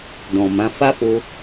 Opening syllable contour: low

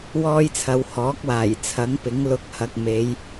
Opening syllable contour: high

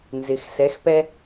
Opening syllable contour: low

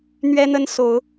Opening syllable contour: high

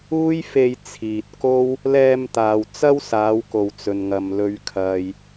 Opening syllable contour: high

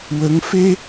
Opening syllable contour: rising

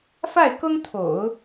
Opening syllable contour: falling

